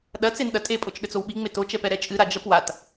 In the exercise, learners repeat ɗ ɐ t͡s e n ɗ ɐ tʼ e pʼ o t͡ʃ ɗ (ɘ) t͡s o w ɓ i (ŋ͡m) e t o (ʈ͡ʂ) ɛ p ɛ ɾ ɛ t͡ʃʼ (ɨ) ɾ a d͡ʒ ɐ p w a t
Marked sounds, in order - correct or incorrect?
correct, correct, incorrect, correct

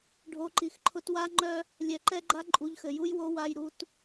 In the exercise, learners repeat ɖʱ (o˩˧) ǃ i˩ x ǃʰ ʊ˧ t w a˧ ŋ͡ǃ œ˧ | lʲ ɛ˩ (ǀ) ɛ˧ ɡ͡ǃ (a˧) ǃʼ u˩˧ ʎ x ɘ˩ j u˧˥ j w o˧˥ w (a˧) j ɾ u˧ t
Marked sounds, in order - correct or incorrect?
correct, incorrect, correct, correct

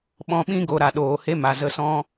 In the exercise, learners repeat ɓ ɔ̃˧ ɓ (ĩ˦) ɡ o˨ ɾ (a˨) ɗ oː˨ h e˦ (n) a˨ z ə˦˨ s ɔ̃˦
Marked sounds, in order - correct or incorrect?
correct, correct, incorrect

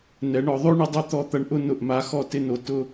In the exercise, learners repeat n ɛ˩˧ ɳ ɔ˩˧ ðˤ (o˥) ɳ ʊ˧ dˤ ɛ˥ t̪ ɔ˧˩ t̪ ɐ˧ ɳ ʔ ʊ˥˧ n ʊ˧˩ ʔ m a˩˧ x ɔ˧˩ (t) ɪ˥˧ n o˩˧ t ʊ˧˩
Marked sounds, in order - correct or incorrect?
correct, correct

